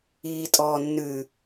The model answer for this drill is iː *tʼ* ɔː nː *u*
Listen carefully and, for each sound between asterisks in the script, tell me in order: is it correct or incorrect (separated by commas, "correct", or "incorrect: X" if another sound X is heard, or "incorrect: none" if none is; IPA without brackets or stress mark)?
correct, incorrect: ʉ